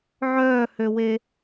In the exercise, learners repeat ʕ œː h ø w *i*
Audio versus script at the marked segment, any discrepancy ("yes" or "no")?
yes